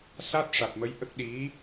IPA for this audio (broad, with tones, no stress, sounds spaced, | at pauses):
s a˦˥ t̚ ʂ a˨˩ t̚ m ə˧˥ j ʔ ə˦˥ k̚ ɗ i˧˥